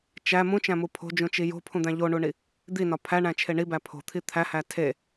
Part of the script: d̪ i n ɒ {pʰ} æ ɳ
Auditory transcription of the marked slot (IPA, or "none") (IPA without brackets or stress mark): pʰ